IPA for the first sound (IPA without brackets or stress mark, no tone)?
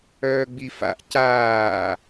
œː